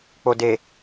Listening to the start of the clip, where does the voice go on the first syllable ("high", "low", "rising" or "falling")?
low